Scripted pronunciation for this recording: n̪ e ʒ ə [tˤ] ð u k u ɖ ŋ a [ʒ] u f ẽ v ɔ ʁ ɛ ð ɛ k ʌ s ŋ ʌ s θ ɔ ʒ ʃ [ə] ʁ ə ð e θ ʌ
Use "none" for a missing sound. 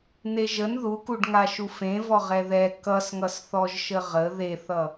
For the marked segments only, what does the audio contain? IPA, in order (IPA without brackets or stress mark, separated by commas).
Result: n, ʃ, ə